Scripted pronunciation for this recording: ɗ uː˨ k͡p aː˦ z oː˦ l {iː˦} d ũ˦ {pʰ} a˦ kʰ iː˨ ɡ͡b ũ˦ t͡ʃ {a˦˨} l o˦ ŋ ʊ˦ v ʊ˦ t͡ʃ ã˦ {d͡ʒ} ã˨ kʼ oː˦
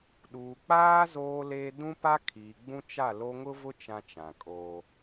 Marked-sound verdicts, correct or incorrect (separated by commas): incorrect, incorrect, correct, incorrect